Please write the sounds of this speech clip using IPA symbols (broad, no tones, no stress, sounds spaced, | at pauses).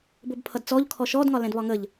b ʊ b pʰ ʌ d t͡s ɔ ʎ kʰ ɔ ʃ ɔ d ŋ ɒ l ɛ̃ d β ɒ ŋ ə ʎ